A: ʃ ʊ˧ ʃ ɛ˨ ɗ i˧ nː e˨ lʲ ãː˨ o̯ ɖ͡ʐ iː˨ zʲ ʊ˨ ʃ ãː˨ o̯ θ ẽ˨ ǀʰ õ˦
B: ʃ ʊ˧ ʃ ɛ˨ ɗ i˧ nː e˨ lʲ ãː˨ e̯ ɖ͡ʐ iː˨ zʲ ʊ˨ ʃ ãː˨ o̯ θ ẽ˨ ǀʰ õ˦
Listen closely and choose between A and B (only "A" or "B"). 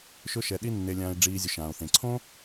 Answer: B